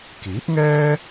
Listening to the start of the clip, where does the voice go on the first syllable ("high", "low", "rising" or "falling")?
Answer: rising